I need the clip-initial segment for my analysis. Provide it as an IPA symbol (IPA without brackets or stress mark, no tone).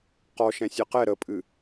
q